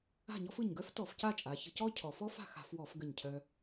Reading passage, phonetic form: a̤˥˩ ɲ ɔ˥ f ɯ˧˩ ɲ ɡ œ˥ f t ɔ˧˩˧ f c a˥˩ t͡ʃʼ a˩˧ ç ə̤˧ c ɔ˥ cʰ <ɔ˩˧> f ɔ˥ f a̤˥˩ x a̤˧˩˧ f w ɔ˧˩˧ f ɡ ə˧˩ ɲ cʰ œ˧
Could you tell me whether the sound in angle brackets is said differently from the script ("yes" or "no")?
no